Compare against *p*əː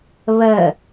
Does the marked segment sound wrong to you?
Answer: yes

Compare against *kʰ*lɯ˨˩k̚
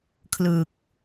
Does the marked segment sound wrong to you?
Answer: no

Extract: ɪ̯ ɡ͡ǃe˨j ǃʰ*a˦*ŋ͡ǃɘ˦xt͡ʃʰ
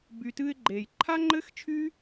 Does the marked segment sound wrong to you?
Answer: no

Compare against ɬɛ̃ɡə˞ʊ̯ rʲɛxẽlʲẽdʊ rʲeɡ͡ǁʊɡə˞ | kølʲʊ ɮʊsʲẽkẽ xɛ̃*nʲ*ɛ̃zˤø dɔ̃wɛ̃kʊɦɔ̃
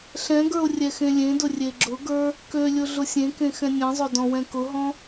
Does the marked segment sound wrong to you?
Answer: no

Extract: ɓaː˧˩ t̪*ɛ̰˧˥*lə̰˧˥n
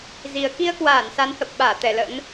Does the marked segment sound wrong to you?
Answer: yes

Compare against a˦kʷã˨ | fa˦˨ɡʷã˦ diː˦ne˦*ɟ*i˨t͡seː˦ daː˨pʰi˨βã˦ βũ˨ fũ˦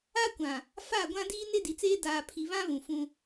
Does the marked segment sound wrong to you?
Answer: yes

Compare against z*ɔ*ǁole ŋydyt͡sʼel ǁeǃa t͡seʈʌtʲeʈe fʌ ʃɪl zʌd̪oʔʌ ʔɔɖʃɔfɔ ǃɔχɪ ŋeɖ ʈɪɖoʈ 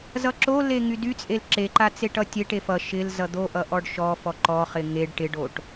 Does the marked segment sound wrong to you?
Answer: yes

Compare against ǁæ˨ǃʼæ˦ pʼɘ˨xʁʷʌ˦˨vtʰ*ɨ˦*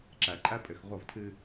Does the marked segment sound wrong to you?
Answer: no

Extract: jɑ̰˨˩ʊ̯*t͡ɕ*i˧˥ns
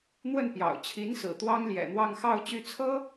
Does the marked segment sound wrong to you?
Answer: yes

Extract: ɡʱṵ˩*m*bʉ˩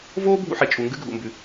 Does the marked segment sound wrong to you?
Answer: no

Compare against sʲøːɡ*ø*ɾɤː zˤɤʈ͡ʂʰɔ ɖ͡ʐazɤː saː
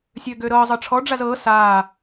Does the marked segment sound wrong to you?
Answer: no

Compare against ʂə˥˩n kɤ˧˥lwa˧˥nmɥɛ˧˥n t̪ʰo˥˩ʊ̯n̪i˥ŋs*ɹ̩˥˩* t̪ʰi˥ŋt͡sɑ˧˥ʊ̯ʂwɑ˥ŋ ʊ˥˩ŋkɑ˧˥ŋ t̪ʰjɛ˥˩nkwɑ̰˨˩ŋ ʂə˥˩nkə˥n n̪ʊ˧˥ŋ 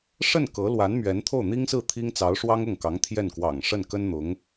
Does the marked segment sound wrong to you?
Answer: no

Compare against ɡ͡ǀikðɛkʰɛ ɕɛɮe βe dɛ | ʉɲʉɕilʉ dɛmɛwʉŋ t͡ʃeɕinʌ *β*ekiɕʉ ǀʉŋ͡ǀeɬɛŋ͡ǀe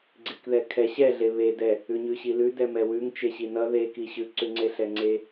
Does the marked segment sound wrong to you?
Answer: yes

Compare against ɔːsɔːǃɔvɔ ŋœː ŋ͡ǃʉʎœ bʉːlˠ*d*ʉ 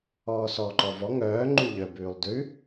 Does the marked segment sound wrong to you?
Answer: no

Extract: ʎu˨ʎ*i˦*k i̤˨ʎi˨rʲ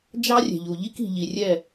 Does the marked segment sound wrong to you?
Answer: no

